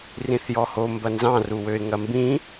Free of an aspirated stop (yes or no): yes